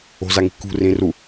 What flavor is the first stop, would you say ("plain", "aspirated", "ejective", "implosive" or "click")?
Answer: plain